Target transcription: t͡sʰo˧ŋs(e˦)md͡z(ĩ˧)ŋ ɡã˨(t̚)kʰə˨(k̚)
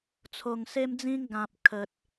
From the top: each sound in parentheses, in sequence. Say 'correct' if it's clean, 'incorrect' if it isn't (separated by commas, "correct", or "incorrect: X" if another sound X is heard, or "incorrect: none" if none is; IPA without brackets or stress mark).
correct, incorrect: ĩ˦, incorrect: p̚, incorrect: t̚